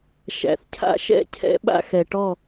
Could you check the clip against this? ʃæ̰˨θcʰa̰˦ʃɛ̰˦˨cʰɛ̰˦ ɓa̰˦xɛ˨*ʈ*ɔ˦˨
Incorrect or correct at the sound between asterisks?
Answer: correct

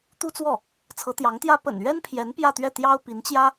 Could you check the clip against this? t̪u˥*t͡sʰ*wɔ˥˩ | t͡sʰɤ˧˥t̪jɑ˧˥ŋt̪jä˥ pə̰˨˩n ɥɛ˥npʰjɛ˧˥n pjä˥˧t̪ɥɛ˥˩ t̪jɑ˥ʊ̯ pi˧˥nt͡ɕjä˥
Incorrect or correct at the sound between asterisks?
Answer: incorrect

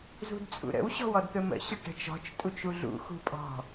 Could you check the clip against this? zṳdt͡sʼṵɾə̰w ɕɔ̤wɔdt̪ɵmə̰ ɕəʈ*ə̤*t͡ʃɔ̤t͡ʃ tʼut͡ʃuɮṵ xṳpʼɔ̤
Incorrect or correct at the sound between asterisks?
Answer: correct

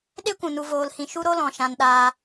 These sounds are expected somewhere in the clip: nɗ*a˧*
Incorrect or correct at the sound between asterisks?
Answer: incorrect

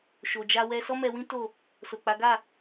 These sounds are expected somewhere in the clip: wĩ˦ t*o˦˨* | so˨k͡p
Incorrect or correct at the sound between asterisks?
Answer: correct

